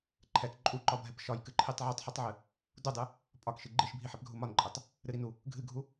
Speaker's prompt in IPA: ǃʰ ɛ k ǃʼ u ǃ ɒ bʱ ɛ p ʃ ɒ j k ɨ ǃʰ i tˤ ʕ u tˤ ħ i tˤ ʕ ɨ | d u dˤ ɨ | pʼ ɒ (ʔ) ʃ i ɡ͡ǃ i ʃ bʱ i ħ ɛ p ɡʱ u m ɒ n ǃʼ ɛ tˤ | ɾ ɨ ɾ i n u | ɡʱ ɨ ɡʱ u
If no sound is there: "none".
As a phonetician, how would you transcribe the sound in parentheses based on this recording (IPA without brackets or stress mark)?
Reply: k